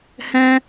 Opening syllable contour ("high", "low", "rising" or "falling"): high